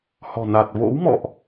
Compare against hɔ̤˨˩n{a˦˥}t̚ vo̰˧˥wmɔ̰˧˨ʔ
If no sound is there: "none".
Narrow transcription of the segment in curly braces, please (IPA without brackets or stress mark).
a˨˩